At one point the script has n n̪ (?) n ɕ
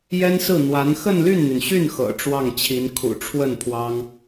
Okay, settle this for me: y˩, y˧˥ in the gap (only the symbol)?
y˩